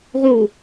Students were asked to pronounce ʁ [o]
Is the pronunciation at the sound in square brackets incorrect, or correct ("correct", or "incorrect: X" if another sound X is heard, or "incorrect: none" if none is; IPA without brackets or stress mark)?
incorrect: u